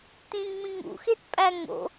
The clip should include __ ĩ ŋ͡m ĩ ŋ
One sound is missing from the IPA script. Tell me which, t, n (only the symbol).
t